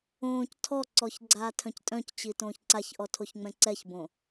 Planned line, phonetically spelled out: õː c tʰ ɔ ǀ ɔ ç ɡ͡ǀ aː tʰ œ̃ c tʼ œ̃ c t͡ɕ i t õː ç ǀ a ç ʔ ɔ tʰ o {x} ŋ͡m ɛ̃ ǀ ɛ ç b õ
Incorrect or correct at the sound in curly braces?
incorrect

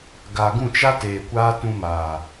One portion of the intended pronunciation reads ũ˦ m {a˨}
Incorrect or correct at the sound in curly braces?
incorrect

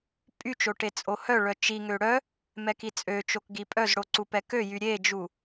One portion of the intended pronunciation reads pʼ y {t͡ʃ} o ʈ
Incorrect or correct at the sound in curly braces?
correct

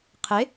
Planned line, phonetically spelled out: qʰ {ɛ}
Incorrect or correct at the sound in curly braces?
incorrect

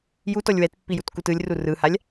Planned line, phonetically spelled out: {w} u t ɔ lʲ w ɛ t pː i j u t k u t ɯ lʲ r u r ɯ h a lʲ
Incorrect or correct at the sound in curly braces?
incorrect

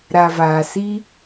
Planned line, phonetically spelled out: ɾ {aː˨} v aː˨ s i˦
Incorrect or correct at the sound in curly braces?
incorrect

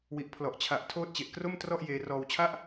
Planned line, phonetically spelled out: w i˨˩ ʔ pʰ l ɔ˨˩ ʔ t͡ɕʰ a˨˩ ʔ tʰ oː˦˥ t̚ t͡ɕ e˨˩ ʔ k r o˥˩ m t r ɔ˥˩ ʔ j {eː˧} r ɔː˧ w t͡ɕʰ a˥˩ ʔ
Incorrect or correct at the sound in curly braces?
correct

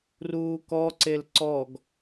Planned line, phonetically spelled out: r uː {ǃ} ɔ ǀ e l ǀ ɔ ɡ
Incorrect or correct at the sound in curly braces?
incorrect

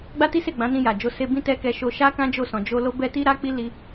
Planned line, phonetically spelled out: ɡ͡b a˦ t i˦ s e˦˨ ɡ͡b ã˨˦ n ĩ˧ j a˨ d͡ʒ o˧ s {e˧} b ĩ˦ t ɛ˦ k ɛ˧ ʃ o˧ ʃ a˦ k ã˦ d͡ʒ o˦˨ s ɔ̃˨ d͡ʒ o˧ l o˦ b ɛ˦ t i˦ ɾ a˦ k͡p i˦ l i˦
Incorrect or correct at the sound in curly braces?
correct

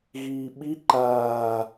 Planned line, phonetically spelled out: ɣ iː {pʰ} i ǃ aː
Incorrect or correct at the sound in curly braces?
incorrect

